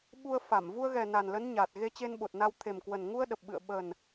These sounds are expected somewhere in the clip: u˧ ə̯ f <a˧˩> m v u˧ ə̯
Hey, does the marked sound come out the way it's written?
yes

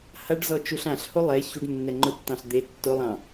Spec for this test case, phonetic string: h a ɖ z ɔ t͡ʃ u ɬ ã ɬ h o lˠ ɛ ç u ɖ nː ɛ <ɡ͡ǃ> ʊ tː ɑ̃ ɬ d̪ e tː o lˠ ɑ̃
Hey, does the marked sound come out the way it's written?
no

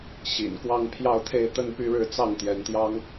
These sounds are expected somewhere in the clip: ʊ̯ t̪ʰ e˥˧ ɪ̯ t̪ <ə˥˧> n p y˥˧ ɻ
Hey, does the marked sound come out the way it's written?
yes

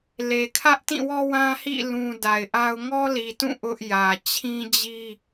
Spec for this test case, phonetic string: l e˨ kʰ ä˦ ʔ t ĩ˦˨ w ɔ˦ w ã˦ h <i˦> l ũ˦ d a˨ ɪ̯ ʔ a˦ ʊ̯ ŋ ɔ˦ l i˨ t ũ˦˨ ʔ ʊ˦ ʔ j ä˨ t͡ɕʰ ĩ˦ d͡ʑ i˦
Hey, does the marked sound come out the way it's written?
no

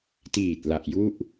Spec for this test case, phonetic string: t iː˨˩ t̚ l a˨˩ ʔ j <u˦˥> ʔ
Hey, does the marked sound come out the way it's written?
no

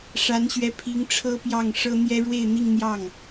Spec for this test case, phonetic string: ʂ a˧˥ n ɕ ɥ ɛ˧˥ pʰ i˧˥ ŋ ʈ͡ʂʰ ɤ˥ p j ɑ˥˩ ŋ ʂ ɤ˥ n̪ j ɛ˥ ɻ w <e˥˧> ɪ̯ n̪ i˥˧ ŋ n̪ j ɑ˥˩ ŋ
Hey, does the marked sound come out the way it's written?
yes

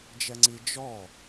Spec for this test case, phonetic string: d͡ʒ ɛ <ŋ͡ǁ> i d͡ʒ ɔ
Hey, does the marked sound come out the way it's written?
no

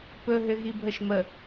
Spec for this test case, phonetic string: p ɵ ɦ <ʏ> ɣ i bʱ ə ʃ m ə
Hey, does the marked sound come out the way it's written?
yes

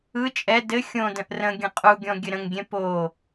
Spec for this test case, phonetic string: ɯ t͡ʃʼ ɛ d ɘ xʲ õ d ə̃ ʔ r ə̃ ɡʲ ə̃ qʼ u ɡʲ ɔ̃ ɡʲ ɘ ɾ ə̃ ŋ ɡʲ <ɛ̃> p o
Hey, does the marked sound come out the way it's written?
yes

